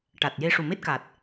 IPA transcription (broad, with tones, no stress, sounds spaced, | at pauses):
ʈ a˨˩ t̚ j e˧ ʂ u˨˩ m e˦˥ t̚ k a˨˩ t̚